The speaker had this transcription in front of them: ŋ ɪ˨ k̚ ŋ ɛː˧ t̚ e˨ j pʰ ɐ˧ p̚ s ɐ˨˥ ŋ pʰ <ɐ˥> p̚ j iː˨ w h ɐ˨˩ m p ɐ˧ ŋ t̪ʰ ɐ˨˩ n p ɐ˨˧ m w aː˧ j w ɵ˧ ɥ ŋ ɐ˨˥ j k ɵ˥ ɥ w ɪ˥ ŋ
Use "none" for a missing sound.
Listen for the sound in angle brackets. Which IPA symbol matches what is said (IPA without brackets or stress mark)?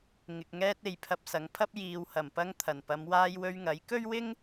ɐ˥